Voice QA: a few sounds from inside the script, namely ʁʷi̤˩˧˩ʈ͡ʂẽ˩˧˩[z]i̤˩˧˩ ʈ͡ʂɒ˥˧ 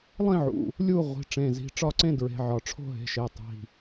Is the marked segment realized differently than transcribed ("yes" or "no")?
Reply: no